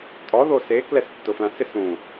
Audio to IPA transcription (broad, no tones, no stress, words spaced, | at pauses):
tʼɔðo se klɛstːʊflãsɪs ũ